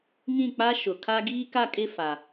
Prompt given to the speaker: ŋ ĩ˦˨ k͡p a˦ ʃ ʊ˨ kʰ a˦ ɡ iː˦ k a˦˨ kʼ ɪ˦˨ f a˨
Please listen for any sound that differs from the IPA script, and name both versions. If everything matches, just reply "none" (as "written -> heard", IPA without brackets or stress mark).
none